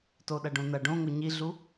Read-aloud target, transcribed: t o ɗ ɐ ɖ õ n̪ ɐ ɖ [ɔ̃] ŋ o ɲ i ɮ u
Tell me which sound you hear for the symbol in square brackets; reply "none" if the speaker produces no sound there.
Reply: õ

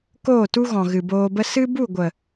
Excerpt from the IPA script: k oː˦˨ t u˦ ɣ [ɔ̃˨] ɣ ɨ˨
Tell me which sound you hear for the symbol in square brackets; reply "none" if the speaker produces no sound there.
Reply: ɔ̃˨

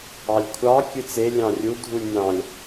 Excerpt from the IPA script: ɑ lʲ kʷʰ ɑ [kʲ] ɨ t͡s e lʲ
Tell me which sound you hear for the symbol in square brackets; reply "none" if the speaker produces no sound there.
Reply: kʲ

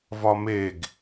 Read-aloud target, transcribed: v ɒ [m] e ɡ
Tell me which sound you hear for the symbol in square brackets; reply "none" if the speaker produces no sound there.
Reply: m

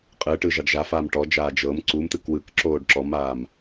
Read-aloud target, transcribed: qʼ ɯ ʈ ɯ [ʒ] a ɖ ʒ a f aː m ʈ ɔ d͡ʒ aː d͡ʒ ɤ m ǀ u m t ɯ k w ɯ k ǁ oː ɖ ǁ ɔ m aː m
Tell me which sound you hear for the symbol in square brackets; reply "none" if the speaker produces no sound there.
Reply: ʒ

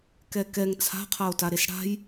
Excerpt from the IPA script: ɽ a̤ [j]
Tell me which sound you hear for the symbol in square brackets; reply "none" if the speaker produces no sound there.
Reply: j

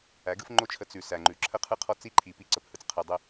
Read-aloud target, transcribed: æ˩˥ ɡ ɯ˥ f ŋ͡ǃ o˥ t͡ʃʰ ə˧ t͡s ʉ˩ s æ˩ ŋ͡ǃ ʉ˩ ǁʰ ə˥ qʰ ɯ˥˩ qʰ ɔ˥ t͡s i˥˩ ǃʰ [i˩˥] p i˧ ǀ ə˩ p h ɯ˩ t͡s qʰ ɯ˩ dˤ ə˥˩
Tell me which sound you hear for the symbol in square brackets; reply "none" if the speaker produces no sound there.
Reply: i˩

